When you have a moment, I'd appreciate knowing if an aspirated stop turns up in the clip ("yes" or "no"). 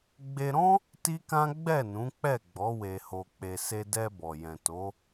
no